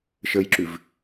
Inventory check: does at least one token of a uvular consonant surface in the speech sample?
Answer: no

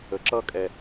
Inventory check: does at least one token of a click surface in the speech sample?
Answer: yes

